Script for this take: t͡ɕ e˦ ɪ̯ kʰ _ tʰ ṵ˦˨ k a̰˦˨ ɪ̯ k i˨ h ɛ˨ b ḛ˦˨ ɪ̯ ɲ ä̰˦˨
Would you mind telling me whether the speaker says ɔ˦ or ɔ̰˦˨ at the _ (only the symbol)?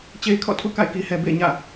ɔ̰˦˨